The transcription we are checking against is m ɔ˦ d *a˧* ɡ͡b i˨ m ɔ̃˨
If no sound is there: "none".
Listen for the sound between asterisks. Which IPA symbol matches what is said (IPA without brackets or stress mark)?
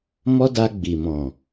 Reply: a˧